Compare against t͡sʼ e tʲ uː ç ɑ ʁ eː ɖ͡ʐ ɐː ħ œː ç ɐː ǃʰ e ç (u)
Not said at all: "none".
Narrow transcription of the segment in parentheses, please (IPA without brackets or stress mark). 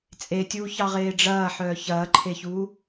uː